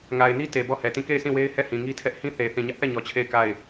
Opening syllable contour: low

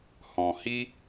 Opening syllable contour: low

